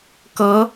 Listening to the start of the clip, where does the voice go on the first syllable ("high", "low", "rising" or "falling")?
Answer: rising